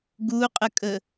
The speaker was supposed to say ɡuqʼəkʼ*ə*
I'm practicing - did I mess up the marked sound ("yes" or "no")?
no